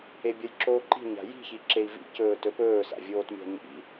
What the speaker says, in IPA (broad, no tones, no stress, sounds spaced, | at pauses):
e bʲ ɐ j ǁ oː ǃ i̤ ɲ a̤ j i̤ ç i ǁ e i̯ v ḭ c ɵː t ɵ p ɵː s a̰ vʲ oː t mʲ a̤ ɲ ḭ